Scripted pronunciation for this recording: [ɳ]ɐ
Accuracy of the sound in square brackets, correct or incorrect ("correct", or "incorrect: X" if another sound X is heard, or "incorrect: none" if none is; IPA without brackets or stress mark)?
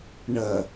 correct